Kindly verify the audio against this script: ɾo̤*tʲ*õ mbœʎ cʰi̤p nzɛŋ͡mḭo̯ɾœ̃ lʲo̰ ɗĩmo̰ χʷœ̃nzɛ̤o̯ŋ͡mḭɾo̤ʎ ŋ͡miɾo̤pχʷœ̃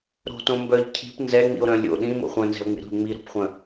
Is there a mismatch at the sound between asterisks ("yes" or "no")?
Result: yes